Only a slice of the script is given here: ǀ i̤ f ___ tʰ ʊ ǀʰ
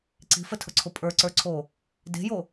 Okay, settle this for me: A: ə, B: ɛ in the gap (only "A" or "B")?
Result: A